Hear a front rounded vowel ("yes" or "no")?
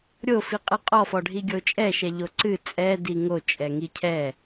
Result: no